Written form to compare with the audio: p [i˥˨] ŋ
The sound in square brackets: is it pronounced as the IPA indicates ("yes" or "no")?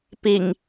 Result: no